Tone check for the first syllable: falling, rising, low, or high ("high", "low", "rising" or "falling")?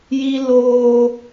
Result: high